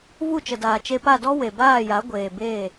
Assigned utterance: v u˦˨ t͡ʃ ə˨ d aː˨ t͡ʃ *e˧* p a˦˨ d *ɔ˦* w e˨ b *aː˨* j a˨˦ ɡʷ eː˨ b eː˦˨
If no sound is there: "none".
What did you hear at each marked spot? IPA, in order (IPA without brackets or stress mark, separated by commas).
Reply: e˧, ɔ˦, aː˦˨